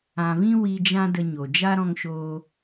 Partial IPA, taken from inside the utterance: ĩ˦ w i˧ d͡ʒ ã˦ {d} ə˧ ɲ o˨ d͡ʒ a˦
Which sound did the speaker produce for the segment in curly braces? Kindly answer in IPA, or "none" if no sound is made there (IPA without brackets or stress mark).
d